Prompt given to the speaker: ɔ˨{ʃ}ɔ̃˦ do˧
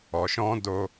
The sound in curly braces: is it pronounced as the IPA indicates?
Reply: yes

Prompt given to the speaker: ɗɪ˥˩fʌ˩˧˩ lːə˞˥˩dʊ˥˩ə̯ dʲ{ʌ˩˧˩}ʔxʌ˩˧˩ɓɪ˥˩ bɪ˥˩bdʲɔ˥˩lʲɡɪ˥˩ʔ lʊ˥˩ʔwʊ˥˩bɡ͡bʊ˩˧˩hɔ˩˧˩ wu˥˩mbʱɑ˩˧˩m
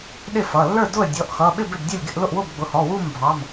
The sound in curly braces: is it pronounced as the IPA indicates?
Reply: no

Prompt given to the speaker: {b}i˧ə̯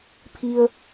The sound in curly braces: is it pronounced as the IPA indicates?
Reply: no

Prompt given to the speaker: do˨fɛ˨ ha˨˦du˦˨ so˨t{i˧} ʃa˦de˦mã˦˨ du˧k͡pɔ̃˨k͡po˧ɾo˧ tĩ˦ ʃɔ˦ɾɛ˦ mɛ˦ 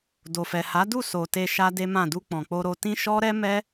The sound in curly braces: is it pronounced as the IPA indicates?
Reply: no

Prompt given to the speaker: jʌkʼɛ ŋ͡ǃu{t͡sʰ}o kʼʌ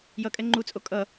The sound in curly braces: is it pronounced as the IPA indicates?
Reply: no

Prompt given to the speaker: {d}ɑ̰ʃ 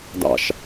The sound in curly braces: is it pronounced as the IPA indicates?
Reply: yes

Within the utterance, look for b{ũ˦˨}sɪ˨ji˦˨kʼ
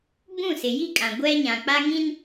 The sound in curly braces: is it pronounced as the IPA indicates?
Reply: yes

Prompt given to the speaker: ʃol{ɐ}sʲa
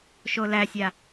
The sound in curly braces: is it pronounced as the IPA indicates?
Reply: no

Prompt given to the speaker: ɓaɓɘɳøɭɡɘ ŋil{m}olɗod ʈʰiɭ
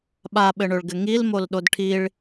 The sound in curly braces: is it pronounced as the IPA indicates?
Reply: yes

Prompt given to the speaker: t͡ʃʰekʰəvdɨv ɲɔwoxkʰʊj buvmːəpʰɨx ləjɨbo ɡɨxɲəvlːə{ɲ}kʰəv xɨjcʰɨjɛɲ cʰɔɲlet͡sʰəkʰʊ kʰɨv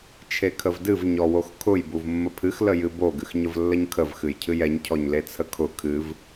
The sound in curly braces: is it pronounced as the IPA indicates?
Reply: yes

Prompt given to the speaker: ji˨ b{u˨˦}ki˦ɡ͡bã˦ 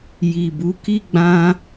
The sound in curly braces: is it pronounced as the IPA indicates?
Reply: yes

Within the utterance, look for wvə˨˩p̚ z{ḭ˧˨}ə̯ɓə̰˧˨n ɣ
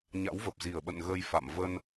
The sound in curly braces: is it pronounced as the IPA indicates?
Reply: no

